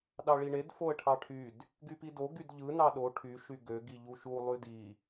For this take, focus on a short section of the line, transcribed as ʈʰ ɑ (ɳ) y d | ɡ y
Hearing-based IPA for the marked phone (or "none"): ʈʰ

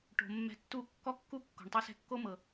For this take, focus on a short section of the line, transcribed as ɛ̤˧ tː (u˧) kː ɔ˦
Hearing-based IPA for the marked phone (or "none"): u˦˨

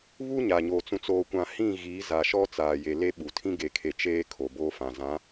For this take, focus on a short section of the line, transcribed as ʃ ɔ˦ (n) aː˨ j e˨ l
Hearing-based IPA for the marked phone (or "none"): t͡s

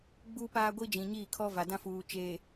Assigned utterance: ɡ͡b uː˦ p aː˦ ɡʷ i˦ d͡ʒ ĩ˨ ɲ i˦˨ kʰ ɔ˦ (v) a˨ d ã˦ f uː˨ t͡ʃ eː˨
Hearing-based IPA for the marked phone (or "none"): v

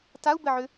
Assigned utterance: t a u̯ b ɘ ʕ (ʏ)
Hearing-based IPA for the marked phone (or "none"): ʏ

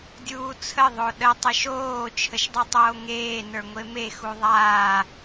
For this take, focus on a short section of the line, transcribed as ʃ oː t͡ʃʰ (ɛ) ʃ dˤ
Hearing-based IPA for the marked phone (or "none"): ə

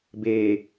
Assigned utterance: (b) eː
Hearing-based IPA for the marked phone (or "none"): b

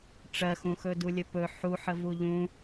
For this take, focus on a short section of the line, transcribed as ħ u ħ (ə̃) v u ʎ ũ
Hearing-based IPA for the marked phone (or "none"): ə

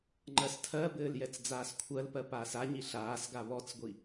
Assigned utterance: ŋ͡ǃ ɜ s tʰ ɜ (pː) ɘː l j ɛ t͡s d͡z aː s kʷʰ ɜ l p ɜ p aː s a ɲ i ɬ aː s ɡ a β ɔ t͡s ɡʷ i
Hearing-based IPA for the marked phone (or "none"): b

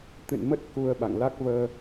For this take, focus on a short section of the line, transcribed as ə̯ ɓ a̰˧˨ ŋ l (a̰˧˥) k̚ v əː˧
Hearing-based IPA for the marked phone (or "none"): a˦˥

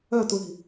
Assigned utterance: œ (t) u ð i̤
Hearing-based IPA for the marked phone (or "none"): t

